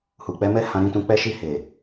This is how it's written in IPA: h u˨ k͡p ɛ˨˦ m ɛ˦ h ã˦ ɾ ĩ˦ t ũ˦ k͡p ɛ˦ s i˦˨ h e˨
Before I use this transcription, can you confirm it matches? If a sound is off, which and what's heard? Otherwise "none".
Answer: s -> ʃ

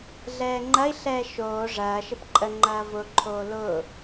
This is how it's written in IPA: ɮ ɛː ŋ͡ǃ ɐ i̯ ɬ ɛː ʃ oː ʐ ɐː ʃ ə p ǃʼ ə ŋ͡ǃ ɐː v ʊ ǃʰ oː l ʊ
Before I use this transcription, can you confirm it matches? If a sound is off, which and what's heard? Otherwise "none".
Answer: none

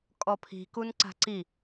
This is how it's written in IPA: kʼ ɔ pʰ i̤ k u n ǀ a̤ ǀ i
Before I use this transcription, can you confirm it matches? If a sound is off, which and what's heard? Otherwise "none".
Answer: none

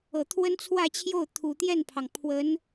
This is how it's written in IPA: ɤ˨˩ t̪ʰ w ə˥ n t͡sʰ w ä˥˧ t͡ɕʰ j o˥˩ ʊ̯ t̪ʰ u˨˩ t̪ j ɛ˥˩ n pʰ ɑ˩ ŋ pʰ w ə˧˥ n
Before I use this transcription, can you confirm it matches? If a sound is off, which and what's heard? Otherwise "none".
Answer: none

